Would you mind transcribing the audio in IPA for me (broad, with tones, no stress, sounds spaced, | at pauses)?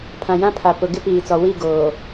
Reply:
pʰ ã˨ j ã˦ pʰ a˨ p ʊ˨ ɡ ɪ˦ p iː˨ t͡s ɔ˨ w i˦˨ ɡ oː˨